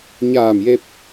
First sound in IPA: ɲ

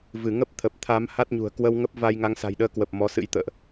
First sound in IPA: v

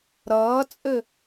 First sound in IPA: ɾ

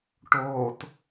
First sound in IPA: ʈ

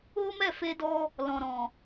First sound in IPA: o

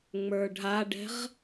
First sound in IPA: ŋ͡m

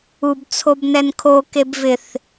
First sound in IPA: u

